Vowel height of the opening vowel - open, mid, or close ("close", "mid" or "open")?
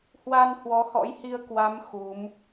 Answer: open